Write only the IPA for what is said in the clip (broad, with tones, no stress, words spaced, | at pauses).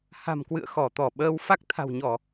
ha̤˨˩mkwɨ̰˧˨ə̯ xɔ˧˩t̪ɔ˧˩ ɓəː˧w fa˦˥k̚ t̪ʰa̤˨˩wɲɔ˧˩˨